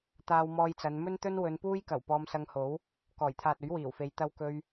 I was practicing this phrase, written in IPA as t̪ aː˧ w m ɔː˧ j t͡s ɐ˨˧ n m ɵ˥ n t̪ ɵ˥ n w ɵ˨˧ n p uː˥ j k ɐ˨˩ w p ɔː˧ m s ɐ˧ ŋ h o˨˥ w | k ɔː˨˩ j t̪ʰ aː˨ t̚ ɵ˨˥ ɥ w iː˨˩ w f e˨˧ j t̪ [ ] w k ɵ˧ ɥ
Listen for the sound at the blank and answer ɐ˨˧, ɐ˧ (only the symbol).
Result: ɐ˧